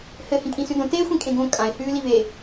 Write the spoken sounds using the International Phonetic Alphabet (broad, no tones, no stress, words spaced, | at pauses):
hɘ hĩkʼĩsʉdõ te xʷĩkʼẽɡõ kʼãɪ̯ hʉːlive